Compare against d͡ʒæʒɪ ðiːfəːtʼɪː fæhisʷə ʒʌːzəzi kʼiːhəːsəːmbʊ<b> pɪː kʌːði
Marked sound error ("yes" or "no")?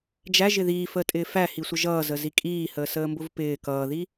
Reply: yes